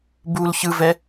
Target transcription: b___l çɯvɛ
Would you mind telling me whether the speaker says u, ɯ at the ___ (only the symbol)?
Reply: u